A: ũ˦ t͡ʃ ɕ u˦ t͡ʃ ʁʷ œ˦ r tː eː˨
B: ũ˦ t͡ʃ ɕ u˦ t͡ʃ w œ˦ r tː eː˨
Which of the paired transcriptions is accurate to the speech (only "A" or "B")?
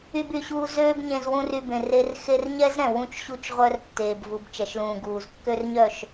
A